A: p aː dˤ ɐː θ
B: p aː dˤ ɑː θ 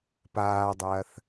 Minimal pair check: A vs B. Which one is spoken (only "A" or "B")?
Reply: A